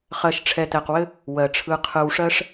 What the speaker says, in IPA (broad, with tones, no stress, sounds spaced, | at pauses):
χ ɜ˨ ʃ ʈ͡ʂʰ ɛ˨ t̪ ɛ˨ q w ɘ˦ | w ɜ˩ ʈ͡ʂʰ ɯ˨ qʰ ɯ˨ w ʂ ɜ˦ ʂ